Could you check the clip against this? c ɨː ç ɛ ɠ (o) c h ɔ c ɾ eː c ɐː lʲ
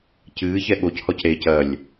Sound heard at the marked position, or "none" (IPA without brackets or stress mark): o